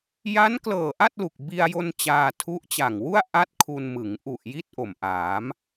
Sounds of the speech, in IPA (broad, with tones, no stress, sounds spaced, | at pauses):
j a˦˥ n k l ɤː˨˩ ʔ a˥˩ t̚ l u˨˩ k̚ b i˧ a̯ j o˧ n t͡ɕ aː˧ tʰ u˦˥ ʔ t͡ɕ a˨˩ ŋ w u˥˩ a̯ ʔ a˥˩ t̚ kʰ u˧ n m ɯ˩˦ ŋ ʔ u˨˩ ʔ j i˥˩ t̚ ʔ o˨˩ m ʔ aː˩˦ m